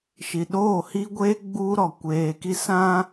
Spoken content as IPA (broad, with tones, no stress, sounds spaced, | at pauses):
ʃ i˨ ɗ oː˦˨ h i˦ ɡʷ eː˦ ɡ͡b uː˦ ɾ ɔ˨ kʷ eː˨ k i˦ s ã˦